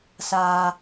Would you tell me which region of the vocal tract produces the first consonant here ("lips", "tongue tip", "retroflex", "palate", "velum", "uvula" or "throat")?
tongue tip